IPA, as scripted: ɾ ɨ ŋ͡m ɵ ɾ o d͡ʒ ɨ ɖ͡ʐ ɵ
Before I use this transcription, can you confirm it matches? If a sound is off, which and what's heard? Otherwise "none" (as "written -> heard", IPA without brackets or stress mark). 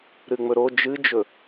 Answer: ɖ͡ʐ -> d͡ʒ